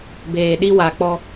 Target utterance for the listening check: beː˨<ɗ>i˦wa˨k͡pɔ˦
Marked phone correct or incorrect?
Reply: correct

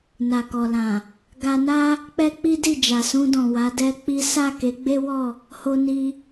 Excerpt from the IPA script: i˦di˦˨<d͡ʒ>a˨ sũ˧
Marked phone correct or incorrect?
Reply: correct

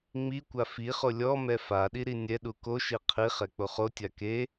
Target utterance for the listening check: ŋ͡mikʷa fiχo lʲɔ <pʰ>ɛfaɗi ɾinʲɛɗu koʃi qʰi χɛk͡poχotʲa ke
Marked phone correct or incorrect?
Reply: incorrect: m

